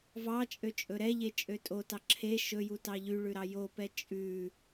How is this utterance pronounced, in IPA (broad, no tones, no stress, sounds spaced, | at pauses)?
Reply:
v ɑ t͡ʃʼ ø t͡ʃʼ ɵ ɾ ɛ ʎ e t͡ʃʼ ø tʼ o t ɑ ǁʰ e ʃ ɵ j u t ɑ ʎ y ɭ ʉ ɾ ɑ j o p ɛ t͡ʃʼ ʉ